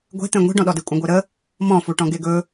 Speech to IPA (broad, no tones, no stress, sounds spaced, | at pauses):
ɡʷ e̤ t̪ ẽ ŋʷ i̤ ɖ ɔ̃ ɗ ɔ d e kʷʼ ẽ ɡʷ e ɾ ə | m ɔ̃ f u ʈ ɔ̃ ɡ e ɡ ɵ